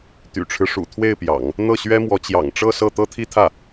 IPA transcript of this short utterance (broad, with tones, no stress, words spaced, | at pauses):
t̪y̰˨˩ʈ͡ʂʰɻ̩˦ʂṵ˨˩ t̪ʰwe˥˩ɪ̯pjɑ̰˨˩˦ŋ | n̪ɤ˥˩ɕɥɛ˥mwɔ˧˥ t͡ɕjɑ̰˨˩ŋʈ͡ʂɤ˥˧ sɤ˥˩ t̪ɤ˥t̪ʰi˥t̪ʰä˥˩